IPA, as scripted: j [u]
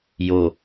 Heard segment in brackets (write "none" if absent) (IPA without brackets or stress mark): o